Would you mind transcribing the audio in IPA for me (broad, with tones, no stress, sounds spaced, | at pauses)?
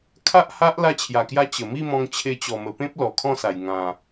kʰ a˦ ʔ h a˦ ʔ l a˧ t͡ɕʰ j a˨˩ k j a˧ t͡ɕ ə˨˩ m i˥˧ m ɔ̃˧ ŋ t͡ɕʰ e˧ t͡ɕ ɔ˨˩ m ə˨˩ p ẽ˦ p̚ l ɔ˨˩ kʰ ɔ̃˥˧ s a˨˩ j ŋ ã˨˩